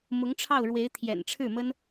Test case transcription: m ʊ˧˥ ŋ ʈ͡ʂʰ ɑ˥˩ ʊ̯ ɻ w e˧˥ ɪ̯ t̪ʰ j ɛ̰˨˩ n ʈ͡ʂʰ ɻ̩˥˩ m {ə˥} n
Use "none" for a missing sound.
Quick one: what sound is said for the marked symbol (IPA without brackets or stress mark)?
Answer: ə˥